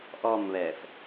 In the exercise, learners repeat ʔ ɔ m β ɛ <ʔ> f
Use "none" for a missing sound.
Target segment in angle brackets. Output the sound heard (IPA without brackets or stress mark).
none